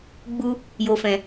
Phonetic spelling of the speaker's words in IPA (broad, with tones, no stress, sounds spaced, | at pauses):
ɡ͡b u˧ | j o˧ f ɛ̃˧